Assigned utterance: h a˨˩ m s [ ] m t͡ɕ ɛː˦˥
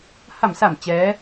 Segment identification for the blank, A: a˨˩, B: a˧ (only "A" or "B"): A